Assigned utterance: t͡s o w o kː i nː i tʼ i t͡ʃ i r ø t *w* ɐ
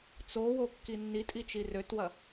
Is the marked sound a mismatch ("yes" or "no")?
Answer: no